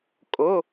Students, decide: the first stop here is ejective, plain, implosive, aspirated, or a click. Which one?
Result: ejective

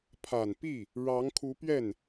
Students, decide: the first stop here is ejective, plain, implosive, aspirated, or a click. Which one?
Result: aspirated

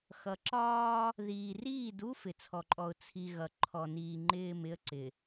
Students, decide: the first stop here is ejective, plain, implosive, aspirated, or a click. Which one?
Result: click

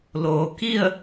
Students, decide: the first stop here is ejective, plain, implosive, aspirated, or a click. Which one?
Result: plain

